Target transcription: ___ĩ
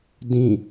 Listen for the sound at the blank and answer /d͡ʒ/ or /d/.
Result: d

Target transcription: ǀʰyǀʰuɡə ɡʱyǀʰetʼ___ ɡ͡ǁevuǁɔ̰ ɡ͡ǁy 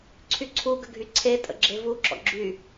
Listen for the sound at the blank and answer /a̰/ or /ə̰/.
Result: ə̰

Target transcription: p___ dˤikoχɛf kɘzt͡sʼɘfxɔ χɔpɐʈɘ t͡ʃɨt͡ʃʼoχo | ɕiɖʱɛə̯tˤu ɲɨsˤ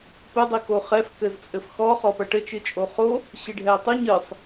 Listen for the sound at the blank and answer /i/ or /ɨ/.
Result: ɨ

